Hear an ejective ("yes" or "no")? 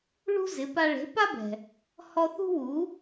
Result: no